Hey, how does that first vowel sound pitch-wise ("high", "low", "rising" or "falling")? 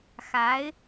rising